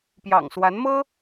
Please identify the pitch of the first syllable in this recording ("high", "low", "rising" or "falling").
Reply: low